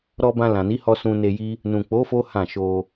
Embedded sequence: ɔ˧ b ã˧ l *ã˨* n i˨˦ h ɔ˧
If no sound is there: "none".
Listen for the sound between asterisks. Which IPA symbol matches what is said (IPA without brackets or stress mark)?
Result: ã˨